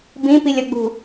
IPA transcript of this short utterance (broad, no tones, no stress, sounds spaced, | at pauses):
b ĩ p i lʲ ɐ ɡ͡b ṳ